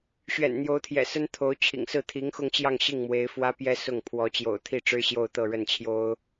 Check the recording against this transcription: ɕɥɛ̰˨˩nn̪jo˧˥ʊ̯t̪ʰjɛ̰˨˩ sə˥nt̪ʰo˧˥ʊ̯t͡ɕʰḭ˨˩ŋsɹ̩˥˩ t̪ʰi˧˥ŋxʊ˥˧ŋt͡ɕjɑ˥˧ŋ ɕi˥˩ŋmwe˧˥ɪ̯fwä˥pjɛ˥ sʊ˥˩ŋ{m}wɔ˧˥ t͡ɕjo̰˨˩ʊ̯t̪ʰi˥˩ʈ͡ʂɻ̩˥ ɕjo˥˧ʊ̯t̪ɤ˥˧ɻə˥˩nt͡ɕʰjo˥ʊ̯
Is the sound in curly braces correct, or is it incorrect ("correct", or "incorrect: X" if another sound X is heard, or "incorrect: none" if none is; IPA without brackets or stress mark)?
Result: incorrect: pʰ